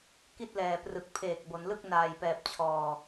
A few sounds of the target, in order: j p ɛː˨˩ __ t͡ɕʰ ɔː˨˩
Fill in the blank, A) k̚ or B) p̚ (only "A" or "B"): B